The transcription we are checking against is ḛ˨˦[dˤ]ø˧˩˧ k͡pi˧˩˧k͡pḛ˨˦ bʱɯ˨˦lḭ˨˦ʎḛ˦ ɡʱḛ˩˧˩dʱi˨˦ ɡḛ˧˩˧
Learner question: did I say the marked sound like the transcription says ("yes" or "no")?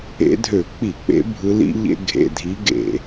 no